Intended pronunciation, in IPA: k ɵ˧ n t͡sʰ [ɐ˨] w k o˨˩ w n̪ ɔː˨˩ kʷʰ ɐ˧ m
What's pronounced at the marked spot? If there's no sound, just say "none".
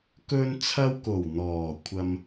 ɐ˧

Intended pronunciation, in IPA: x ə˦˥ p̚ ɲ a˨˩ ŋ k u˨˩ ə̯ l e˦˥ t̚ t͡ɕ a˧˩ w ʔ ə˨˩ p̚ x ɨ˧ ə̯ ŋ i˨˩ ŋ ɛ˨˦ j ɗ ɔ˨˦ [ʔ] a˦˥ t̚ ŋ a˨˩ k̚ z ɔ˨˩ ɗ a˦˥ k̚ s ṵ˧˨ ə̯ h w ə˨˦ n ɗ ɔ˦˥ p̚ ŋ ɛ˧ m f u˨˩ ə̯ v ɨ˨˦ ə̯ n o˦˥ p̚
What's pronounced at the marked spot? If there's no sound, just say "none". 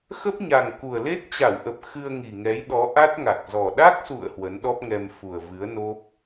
ʔ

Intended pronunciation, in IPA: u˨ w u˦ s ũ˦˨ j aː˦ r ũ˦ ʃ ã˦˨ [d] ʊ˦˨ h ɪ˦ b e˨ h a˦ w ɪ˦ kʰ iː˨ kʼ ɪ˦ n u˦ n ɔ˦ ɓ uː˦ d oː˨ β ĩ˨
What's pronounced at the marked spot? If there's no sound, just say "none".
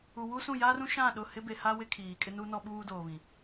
ɗ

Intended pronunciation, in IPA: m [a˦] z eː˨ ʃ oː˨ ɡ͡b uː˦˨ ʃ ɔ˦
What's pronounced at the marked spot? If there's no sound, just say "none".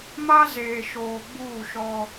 a˦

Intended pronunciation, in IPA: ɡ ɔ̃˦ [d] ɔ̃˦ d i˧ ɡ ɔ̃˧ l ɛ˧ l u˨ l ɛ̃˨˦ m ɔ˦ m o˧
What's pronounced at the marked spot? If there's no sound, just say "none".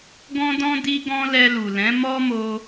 d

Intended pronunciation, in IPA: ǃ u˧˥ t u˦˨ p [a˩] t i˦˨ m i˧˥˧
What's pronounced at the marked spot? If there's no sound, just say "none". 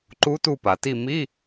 a˩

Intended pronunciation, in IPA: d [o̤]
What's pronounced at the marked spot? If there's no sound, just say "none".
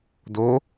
o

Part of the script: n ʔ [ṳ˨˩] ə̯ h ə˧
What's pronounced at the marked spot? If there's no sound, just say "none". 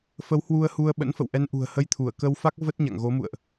ṳ˨˩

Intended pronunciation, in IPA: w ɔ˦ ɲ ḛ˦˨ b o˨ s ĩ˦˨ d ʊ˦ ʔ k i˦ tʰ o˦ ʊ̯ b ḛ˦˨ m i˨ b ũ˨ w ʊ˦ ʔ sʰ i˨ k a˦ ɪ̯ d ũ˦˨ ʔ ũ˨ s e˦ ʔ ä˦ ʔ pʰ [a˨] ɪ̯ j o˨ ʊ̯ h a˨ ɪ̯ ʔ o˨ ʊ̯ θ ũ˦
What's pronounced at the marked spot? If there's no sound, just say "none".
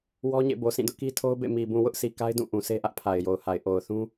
a˨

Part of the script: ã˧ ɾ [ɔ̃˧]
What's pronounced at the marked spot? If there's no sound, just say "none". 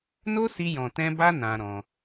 ɔ̃˧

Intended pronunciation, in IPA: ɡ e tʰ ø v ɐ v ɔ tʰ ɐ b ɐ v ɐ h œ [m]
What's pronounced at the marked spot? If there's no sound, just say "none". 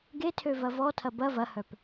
p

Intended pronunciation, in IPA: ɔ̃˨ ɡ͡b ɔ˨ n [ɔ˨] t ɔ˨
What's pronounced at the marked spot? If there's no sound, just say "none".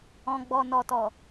ɔ˨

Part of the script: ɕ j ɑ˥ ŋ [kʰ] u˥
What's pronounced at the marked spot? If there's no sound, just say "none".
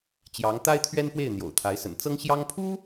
pʰ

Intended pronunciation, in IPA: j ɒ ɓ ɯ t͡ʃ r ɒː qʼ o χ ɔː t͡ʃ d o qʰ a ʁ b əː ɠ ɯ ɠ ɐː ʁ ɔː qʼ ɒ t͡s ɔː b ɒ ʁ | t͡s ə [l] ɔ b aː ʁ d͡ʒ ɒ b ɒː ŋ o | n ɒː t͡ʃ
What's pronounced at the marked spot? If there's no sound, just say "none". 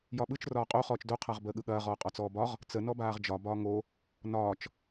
n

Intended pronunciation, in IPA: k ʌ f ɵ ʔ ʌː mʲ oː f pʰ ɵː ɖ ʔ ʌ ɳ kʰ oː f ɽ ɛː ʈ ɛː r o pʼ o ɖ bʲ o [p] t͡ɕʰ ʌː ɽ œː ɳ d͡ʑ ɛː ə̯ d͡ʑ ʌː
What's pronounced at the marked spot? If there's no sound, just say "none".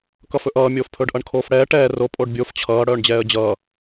f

